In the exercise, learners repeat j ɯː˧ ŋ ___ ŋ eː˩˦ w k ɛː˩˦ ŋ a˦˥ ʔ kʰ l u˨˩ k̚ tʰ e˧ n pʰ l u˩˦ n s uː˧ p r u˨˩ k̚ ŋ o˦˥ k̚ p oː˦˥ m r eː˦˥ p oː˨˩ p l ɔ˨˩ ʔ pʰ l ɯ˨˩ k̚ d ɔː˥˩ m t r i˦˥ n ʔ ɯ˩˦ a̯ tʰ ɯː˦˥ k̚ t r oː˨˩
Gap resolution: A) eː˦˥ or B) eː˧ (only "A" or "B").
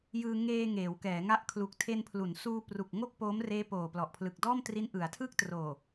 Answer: B